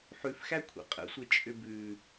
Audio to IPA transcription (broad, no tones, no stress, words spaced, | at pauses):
ħʉfxæ kʷʰɛ̰qʼə̰sʷe t͡ʃʼʏbʉ